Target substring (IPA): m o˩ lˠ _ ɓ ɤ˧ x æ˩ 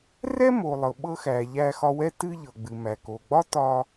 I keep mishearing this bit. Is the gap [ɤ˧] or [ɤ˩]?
ɤ˩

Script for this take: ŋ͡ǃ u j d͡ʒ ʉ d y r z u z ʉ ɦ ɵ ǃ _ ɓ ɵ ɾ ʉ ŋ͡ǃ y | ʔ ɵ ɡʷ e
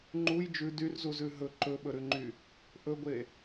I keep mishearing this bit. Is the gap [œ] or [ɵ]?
ɵ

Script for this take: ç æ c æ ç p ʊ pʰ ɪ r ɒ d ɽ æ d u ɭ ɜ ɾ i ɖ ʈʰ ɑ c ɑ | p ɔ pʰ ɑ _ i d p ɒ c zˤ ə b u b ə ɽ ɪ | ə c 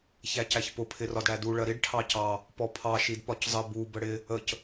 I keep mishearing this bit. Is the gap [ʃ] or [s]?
ʃ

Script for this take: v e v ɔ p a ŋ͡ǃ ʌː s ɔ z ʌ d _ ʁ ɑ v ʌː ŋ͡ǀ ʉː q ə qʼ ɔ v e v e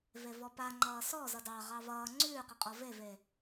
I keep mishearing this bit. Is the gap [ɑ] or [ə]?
ɑ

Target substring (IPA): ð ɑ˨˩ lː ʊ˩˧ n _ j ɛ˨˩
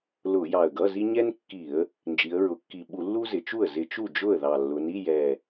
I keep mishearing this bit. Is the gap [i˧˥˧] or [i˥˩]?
i˧˥˧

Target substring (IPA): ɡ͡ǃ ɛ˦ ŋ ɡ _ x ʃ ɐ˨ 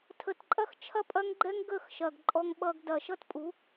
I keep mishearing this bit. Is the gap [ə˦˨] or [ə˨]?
ə˦˨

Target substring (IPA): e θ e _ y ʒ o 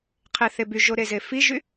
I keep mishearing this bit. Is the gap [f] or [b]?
b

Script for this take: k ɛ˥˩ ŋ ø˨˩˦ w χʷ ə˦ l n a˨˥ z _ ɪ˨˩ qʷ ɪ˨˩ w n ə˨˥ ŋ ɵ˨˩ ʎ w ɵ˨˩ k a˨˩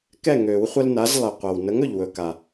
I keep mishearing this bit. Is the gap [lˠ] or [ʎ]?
lˠ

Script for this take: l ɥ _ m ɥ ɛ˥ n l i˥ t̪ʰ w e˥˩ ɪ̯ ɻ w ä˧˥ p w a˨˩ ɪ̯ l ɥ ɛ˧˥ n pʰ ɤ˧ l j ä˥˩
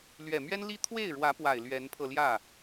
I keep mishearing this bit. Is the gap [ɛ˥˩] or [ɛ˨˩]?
ɛ˨˩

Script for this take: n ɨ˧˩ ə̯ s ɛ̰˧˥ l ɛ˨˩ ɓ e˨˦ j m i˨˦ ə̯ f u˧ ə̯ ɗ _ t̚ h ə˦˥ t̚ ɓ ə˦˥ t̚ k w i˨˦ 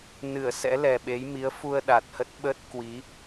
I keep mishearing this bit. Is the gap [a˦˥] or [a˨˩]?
a˨˩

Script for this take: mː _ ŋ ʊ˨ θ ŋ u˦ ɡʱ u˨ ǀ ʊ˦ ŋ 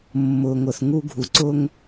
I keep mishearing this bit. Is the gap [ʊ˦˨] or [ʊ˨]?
ʊ˨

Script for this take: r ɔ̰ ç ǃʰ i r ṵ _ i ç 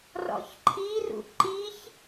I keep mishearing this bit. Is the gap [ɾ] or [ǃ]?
ǃ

